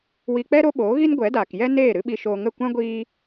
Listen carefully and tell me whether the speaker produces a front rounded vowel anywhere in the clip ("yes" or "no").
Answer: no